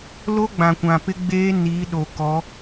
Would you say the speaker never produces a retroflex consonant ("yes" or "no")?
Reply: yes